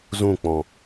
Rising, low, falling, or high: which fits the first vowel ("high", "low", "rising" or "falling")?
falling